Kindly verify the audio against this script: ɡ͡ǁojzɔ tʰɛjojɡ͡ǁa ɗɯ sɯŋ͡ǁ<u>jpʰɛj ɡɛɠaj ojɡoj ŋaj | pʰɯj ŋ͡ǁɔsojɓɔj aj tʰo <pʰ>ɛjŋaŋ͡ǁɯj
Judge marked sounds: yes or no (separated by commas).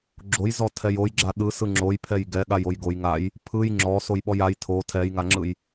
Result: no, no